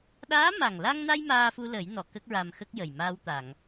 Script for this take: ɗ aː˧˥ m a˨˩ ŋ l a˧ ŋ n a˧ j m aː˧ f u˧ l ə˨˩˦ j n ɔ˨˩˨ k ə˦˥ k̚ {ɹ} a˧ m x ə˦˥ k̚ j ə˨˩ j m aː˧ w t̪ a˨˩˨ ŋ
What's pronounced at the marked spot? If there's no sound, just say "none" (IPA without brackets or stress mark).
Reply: ɹ